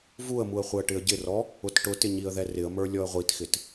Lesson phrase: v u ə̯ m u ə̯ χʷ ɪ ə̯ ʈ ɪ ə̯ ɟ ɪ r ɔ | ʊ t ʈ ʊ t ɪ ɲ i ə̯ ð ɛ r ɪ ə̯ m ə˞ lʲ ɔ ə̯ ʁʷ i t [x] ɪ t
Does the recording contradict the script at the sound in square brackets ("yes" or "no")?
no